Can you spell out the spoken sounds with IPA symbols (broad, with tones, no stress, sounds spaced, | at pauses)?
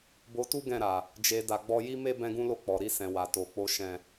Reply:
b o˧ t u˦ ɡ ɛ̃˦˨ ɾ a˨ | d͡ʒ e˧ d a˧ ɡ͡b ɔ˦ j i˦ m e˦ b ɛ̃˦ ɡ ũ˦ l o˦˨ k͡p ɔ˨ ɾ i˧ s ɛ̃˨ w a˨ t o˨ k͡p o˧ ʃ ɛ̃˨